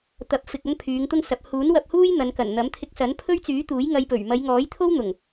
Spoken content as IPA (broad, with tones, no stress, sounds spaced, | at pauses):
t̪ ɐ˨˥ p̚ f ɪ˨ k̚ ɐ˥ n pʰ yː˨˧ ŋ t̪ ʊ˥ ŋ s ɐ˨˥ p̚ h uː˨˥ n w ɐ˧ p̚ h uː˥ j n̪ ɐ˨˧ n k ɐ˨˩ n n̪ ɐ˨˥ m t̪ʰ ɪ˧ k̚ s ɐ˨˥ n pʰ ɵ˥ ɥ t͡s yː˨˥ t̪ uː˨˥ j ŋ ɐ˧ j p ɵ˨˩ ɥ m ɐ˨˧ j ŋ ɔː˨˥ j t̪ʰ o˥ w n̪ ʊ˨˩ ŋ